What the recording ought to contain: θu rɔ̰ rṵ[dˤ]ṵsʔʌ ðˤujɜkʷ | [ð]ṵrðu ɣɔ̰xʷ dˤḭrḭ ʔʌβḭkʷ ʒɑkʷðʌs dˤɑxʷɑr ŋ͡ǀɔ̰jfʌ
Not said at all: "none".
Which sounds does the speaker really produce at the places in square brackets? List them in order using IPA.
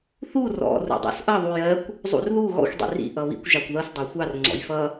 dˤ, zˤ

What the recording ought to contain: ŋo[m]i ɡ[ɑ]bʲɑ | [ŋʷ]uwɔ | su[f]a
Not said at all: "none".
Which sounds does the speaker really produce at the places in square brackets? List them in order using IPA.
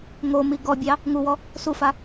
m, ɔ, ŋ, f

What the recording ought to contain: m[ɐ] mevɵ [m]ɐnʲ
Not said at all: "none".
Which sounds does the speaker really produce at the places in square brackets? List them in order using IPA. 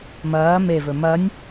ɐː, m

